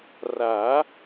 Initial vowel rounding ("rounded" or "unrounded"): unrounded